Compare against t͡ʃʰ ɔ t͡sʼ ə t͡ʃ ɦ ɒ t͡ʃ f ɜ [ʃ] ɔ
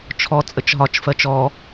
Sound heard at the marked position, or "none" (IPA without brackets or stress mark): t͡ʃ